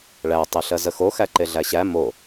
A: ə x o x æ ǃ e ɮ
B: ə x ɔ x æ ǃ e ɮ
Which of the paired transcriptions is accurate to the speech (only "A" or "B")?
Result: A